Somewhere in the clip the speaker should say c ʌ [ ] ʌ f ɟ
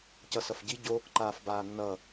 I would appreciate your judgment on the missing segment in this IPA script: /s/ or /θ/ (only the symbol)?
s